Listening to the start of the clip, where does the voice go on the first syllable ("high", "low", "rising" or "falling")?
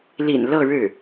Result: low